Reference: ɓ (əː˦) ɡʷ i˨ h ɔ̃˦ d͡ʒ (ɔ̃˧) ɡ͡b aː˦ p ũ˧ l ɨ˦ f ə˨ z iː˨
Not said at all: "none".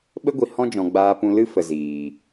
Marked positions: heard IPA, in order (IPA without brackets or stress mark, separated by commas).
ə˦, ɔ̃˧